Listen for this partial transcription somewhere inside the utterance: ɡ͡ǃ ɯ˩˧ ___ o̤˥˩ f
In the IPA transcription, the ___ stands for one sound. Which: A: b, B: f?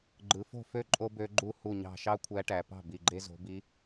B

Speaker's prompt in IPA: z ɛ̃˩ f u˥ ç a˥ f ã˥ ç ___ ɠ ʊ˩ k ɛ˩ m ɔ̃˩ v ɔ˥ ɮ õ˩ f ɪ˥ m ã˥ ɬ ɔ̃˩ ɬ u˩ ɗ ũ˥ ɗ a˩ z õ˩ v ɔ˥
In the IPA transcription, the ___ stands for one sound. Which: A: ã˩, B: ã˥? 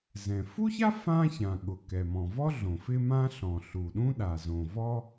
A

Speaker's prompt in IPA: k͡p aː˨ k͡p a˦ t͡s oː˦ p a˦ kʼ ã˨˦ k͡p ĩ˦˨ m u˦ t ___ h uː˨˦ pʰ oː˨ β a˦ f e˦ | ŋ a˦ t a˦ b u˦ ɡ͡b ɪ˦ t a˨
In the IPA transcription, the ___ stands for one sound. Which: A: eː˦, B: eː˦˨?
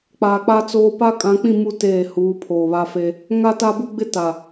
B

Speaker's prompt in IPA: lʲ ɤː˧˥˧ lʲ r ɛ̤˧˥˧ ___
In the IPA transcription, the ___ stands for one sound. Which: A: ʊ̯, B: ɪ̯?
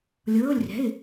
B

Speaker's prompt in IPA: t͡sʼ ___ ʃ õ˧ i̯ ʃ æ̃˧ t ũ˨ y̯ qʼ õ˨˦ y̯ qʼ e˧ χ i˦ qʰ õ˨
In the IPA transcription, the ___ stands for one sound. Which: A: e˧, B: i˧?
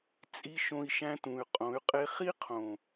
B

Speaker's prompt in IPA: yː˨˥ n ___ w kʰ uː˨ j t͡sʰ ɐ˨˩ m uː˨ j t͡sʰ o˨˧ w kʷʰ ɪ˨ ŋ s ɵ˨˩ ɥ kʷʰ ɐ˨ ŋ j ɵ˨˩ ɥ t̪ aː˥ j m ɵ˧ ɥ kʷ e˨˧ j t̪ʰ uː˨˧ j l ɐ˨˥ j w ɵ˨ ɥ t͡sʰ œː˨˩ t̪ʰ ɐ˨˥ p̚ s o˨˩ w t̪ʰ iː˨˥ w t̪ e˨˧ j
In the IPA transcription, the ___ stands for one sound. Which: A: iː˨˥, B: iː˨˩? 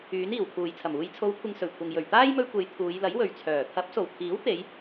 B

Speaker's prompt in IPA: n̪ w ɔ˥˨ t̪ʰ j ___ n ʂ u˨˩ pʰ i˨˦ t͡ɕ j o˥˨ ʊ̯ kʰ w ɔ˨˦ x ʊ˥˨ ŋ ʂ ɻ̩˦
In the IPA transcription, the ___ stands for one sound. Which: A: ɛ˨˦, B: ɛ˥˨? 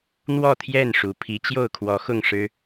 B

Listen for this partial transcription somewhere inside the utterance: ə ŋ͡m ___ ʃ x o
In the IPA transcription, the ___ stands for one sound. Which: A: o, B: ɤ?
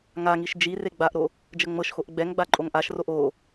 B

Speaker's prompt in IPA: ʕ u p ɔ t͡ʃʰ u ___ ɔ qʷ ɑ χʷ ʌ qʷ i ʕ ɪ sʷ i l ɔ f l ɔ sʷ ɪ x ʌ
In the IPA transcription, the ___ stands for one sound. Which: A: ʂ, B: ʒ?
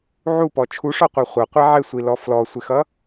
A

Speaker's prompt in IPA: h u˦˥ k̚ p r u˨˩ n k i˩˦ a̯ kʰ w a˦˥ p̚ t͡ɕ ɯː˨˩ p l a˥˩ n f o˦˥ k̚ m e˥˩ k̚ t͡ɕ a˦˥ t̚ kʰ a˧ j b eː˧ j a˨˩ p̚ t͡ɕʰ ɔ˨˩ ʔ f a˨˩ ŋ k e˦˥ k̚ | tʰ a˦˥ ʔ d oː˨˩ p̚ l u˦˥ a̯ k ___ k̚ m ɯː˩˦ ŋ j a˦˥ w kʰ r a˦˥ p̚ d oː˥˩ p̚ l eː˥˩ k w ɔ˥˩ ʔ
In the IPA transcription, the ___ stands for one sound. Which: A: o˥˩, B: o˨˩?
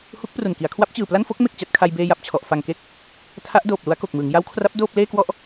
B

